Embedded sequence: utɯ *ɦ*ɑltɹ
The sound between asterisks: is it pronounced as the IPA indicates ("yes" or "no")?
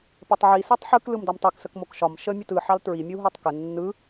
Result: no